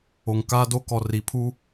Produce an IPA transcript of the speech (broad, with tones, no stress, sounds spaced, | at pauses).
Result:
o˨ ŋ k aː˦ d o˦ k ɔ˨ r i˨ pʰ u˦